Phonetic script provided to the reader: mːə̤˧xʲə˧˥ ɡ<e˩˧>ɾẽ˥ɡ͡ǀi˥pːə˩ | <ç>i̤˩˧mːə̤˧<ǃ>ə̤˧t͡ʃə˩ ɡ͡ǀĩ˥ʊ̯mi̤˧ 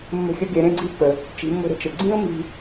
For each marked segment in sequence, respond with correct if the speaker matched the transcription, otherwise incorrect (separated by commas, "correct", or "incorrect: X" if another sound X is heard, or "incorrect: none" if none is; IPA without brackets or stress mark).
correct, incorrect: t͡ʃ, incorrect: ɾ